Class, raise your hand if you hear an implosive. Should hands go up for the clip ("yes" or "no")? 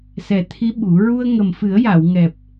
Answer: yes